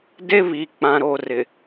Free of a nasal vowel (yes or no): no